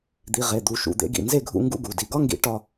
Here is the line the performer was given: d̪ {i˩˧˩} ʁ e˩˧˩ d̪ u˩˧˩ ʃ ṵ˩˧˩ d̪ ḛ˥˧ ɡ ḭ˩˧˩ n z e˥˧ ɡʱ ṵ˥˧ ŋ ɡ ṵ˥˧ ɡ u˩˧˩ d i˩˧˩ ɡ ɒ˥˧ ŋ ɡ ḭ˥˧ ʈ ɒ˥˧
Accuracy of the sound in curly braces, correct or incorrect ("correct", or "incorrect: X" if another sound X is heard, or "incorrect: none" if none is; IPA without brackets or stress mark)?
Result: correct